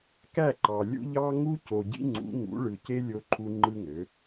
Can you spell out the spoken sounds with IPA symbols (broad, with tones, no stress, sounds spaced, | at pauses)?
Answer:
k æ˦˨ ǃ ɑ˨ lʲ ṵ˦ ʎ ɑ˦ ŋ u˦ c o˨ ɟ ḭ˦ ŋ͡ǀ ṵ˨˦ ŋ ṵ˨˦ ɭ ɯ˨ c e˦ lʲ o˦ ǃʰ u˦ ŋ͡ǃ ɯ˦ ŋ ø˨˦